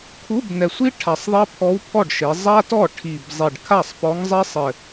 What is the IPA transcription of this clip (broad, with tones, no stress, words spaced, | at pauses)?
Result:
kʰu˧˥˧bnɛ˨˩sʷi˥ ʈʰa˨˩sˤðˤɛ˥ pʰɔ˧˥wpʰɔ˥˩ɖʃe˩˧ zˤa˥tɔ˥˩ ʈʰi˨˩b zˤe˨˩ɖkʰa˥˩sˤpɔ˧˥ŋzˤɛ˥ sˤɘ˨˩